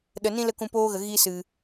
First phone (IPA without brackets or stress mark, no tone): ɗ